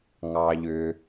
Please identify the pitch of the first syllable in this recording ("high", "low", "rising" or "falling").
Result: low